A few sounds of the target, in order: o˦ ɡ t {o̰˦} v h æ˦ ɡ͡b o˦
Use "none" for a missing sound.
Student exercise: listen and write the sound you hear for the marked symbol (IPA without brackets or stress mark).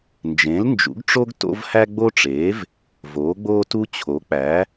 o̰˦